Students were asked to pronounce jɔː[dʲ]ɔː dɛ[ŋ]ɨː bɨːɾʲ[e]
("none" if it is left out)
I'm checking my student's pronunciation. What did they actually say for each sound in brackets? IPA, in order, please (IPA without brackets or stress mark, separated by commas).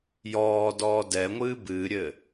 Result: d, ŋʷ, ɘ